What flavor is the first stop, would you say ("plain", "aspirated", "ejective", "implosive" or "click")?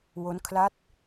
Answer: aspirated